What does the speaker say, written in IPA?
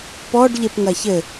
p ɔ ɖ ʎ e p ŋ ɐ ç ɘ

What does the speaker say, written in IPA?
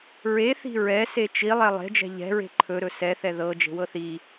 ɹ e θ i̤ ɹ ɛ s e t͡ʃ i lˠ ɛ lˠ e̤ d͡ʒ ɛ̤ ʎ ɛ̤ ɹ e̤ ǃʰ ɵ ɾ ɵ s ɛ θ ɛ ð ɤ d͡ʒ e̤ w ɤ θ i

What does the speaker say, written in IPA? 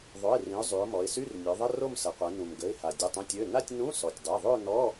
ðˤ o˩˧˩ ɪ̯ r ĩ˩˧ ʊ̯ zˤ y˩˧ ʊ̯ m ɔ˩˧ ɪ̯ s y˧˥˧ r nʲ œ˩˧ ðˤ ə˧˥˧ r o˥˧ m s ə˩˧ qʷ ɛ˩˧ n ũ˩ m ɡ ə˩˧˩ ɪ̯ h a˩ dʲ ə˩˧˩ tˤ ũ˩˧˩ tʲ ø˩˧˩ n a˥˧ tʲ n ũ˧˥˧ s ɔ˩ tʲ dˤ e˩˧˩ ðˤ ø˥˧ n ɔ˧˥˧

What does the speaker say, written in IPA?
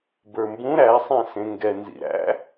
b ə˞ m b ũ ɾ æ sˤ ɛ̃ s ẽ ŋ ɡ ɛ n z ḭ ɾ æ̰

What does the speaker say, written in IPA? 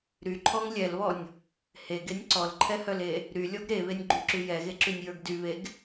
ɾ y ǃʰ ɔ ŋ lʲ ɛ l β ɔ nʲ | h e ɡ e nʲ ǀ ɔ l ǃʰ ɛ h œ l e | ɾ y lʲ ɔ ɡ ɾ e β e nʲ ɡ͡ǃ y ǁ y j ɛ ɣ e ǁ y nʲ j ə˞ ɡ d y β e ɡ

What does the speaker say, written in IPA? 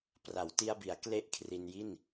p r a˩˦ w t i˧ a̯ b i˩˦ a̯ k l e˥˩ ʔ kʰ r i˧ n j i˥˩ n

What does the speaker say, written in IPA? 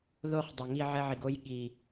ð o˧ χ dˤ ɛ˨ ŋ i˧ ʕ ɛ˧ ʕ i˨ ɡ o˧ j ɠ i˨

